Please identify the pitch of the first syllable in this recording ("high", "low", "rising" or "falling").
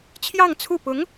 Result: falling